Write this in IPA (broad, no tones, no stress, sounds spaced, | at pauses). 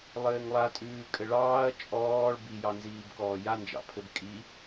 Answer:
lˠ ɘː ŋ lˠ a tʼ ʉː kʼ ɘ ɭ ɑː ɐ̯ t͡ʃʼ ɔː ɭ b i j ɑ n z iː b k ɔː j a n d͡ʒ ɑ̰ pʰ ɘ b kʼ i